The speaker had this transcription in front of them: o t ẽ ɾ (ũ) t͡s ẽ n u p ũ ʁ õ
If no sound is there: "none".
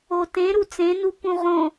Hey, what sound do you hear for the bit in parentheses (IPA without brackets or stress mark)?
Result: u